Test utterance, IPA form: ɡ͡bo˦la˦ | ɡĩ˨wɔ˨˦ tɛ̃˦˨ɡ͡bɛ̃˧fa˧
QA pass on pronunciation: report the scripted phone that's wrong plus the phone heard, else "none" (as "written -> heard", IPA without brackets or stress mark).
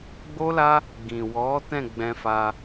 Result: none